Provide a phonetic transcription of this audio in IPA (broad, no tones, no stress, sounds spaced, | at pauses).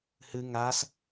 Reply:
h ɨ ŋ a s